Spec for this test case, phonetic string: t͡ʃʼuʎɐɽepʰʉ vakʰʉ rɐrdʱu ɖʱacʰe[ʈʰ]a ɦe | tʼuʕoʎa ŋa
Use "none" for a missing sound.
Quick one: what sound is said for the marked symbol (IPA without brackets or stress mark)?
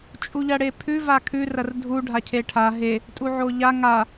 ʈʰ